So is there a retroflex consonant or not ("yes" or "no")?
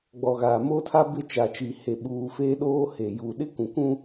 no